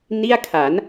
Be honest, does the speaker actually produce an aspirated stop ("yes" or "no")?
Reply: yes